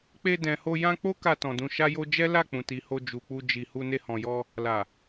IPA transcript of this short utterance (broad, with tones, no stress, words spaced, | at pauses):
k͡pe˧dɛ̃˨ho˧ jã˧ k͡po˦ka˧ tɔ̃˨dũ˧ʃa˦jo˦ d͡ʒɛ˦la˦˨k͡pũ˨ ti˨ho˧ d͡ʒu˨k͡pu˧ d͡ʒi˨hu˧ ne˧hɔ̃˨jɔ˧ | la˨